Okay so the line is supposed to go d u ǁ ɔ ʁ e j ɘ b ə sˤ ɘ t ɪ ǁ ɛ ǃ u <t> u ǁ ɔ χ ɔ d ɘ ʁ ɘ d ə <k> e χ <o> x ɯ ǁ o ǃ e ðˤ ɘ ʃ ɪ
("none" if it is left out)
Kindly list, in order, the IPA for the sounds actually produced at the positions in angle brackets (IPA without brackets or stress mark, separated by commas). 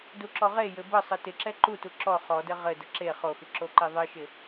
t, ǁ, o